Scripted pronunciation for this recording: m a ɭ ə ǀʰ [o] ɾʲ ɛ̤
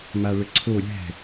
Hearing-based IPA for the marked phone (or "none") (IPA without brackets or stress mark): o